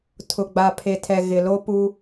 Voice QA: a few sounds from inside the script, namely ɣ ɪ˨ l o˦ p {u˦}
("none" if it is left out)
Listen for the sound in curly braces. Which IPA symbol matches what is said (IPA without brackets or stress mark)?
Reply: u˦